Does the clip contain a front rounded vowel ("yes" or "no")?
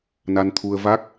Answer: no